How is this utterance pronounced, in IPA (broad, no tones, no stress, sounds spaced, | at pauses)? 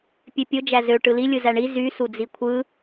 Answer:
pʲ ø pʲ o d͡ʒ æ z ø ʈ ɯ l i lʲ ɯ z æ ɳ i z y s u d͡z i kʷʰ ɯ